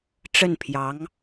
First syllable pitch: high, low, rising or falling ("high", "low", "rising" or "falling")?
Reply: falling